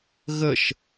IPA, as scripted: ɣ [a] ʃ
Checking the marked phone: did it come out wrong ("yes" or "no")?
yes